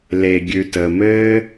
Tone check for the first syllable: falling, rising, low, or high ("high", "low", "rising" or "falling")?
low